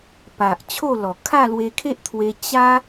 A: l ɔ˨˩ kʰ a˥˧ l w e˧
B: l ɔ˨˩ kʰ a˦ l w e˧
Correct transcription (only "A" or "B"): A